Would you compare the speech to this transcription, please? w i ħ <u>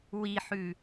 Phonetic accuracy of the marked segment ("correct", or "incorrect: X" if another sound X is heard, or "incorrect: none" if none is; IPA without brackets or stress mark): incorrect: ʉ